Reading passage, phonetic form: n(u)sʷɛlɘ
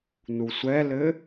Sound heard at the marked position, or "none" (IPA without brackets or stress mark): u